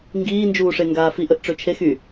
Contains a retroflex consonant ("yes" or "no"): yes